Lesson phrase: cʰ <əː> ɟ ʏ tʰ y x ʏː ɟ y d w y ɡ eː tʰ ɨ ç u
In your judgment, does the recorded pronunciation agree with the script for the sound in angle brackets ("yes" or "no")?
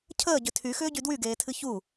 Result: yes